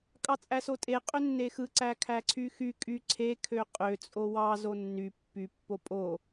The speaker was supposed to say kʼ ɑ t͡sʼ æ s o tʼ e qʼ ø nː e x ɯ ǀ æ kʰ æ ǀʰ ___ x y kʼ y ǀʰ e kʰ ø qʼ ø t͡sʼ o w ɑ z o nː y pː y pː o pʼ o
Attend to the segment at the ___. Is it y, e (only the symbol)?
y